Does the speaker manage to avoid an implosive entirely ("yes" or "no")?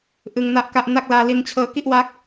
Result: yes